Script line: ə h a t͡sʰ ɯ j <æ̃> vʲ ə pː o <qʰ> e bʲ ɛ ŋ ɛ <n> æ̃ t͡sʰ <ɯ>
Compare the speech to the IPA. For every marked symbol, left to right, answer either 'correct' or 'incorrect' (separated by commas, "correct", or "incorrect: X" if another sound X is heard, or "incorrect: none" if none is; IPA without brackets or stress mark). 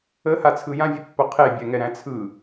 incorrect: ã, correct, incorrect: ɾ, correct